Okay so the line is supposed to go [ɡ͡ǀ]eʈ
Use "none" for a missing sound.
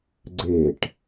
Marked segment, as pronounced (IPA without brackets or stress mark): ɡ͡ǀ